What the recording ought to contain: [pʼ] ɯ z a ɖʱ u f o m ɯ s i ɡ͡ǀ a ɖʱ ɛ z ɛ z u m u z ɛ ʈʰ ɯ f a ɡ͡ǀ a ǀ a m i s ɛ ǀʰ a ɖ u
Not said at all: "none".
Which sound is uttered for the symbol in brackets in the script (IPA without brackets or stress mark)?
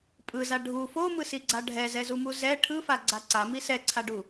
pʼ